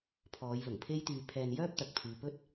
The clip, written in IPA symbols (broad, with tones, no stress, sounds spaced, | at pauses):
pʰ ɔː˨˧ j l ʊ˨˩ ŋ pʰ e˥ j t̪ yː˧ pʰ ɛː˧ n j œː˥ p̚ t̪ ɐ˨ k̚ pʰ yː˨ p ɵ˥ t̚